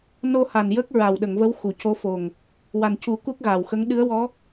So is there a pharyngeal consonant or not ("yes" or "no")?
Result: no